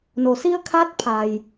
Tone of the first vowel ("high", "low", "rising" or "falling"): low